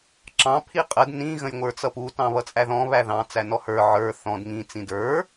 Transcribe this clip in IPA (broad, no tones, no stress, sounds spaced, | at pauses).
ǁ ɑ̃ pʰ i qʼ ə d n ĩ ɣ ə̃ j ŋʷ ə˞ t͡s ʌ p u t ɑ̃ β ʌ t͡sʼ æ ð ɔ̃ β æ ð ɑ̃ t͡s æ n ɔ h ə˞ ʕ ə˞ θ ɔ̃ d ŋ ĩ t͡s ĩ d ə˞